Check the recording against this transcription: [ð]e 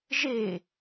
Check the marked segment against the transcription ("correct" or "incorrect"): incorrect